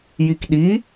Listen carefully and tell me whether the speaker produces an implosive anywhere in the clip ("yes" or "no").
yes